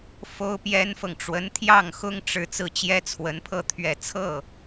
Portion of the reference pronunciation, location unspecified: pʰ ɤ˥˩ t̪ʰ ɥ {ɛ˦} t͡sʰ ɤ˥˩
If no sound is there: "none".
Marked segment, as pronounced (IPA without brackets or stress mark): ɛ˨˩